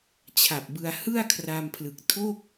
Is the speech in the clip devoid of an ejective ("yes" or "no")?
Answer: yes